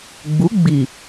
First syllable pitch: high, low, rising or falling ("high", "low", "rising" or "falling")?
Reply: rising